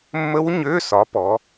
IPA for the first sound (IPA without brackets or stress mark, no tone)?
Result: mː